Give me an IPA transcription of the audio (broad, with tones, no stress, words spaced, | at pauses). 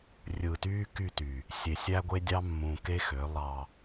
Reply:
rʲɯː˨tyː˦ ky˦˨ty˨ | sʲe˨sʲæ˦ɡʷe˦dʲɑ˦ mːũ˨ ke˦xø˨˦ lˠɑ˦